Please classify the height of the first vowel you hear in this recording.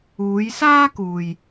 high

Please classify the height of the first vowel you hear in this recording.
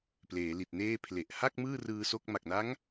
mid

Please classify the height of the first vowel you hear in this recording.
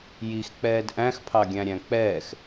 high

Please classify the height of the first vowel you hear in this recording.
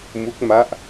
high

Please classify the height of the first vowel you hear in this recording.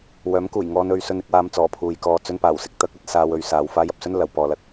mid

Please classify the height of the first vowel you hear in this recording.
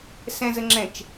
mid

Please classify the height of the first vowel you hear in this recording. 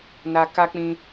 low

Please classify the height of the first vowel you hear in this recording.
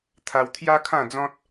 low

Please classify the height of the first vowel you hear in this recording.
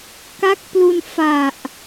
low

